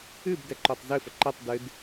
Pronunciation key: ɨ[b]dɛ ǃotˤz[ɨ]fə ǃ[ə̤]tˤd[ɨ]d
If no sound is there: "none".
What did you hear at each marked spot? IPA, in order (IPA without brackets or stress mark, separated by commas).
b, ɨ, ə, ɨ